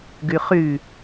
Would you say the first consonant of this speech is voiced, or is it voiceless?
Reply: voiced